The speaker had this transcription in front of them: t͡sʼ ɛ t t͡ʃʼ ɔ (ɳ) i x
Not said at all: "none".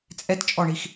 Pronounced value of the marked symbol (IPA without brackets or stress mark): ɳ